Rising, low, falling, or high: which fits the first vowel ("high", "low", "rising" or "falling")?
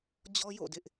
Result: high